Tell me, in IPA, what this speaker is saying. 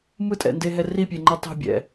mɯtʼɛ̰ndeɦɛ ripʲeŋ͡ǃɛ tˤo̤bʲɛ̰

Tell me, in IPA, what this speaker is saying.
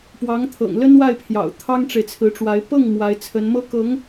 pwɑ˧˥ŋt̪ʰɤ̰˨˩ŋ lə˥n wa˥˩ɪ̯pʰjɑ̰˨˩ʊ̯ t̪ʰɑ˥ŋʈ͡ʂe˨ɪ̯t͡sʰɹ̩˧˥ʈ͡ʂwa˧˥ɪ̯ pɤ˥˩ŋ mwa˧˥ɪ̯t͡sʰə˧˥nmɤ˥ kɤ˧˥ŋ

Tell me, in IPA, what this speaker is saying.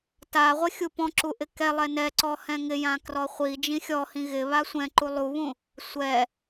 ta ʁʷɪxʲupɔ̃ǁu ʔɪkɛlˠɛ nɛǀɔ hɛ̃ŋɪjã krɔχʷi d͡ʒĩxʲɔhĩ ɣɪβa sʷɛ̃ǃu lˠuβũ | sʷɛ

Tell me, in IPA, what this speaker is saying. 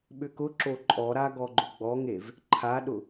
ɓʏkʊǁo ǃʼɔɾa ɡɔɡ͡ǃʊɡ͡bɔŋev | ǃʰaɗʊ

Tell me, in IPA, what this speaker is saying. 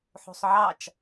ħo̤sˤʕɑt͡ʃ

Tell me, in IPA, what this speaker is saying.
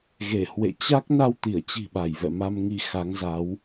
ɣe˧˩hwḛ˧˨t͡ɕa˦˥k̚ na˧wt̪i˧˩ə̯t͡ɕi̤˨˩ɓa˧˩j vɛ̰˧˨ma˧mŋi˧ xa˨˦ŋza˨˦w

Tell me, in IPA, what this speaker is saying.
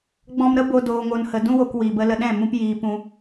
ɡ͡bɔ̃˧mɾə˦bo˧ doː˧ŋo˧nhə˧ dũ˦wo˧k wi˨bə˧lə˧ɗɛ̃˦˨ mũ˦pjiː˧pũ˧

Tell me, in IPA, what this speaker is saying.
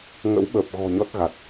ŋə̰˧˥wɓəː˨˩p̚ ɣɔ̤˨˩ ɲɔ˦˥t̚ɣa˨˩t̚

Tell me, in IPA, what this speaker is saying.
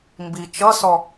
mbi t͡ʃʌsɔ

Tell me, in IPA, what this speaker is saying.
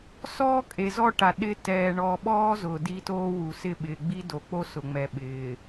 sɔː˦kʼe˨zɔ˦ ʈa˨ɗɪ˦ tɛː˨ɳɔ˨ɓɔː˦ zʊ˨ di˦toː˦wu˨ sɪ˦˨ɓɪː˨ ɡ͡bi˦do˨k͡po˦ sʊ˨ŋ͡mɛ˨ɓɪː˨

